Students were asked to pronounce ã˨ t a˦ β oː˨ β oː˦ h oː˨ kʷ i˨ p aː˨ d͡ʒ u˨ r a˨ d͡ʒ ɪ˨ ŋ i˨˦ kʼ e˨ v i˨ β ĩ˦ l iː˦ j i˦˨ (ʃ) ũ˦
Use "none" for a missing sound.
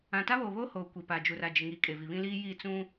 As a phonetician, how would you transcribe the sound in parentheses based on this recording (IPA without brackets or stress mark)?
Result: t͡s